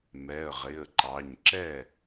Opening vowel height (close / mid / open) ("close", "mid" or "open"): mid